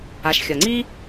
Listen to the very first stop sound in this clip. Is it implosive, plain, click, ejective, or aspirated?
click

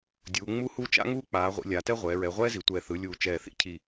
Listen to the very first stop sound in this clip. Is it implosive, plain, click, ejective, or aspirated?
plain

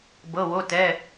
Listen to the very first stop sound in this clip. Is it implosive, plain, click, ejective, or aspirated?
plain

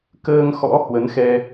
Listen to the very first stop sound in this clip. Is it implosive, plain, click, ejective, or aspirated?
plain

